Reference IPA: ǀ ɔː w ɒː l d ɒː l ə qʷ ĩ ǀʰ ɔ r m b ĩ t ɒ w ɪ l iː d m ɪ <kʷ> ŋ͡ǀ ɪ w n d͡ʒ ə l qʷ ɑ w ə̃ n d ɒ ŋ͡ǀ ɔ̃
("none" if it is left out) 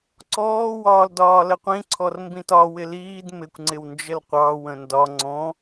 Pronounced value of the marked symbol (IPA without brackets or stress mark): kʷ